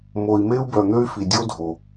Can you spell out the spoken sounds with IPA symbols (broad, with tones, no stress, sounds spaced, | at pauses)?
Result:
m o˨ i̯ m e˦ u̯ b œ˨ n̪ ø˥ y̯ f i˩ dʲ o˥ dʱ o˩